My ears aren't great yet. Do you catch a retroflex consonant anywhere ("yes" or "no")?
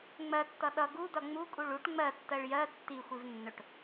yes